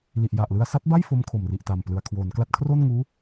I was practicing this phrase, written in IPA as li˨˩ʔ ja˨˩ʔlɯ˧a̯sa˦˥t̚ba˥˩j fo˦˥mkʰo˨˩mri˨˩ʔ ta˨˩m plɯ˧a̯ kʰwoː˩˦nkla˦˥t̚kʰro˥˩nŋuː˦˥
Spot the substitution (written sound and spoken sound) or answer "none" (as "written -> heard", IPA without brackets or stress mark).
none